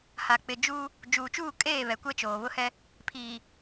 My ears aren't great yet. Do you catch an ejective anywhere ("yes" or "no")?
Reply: yes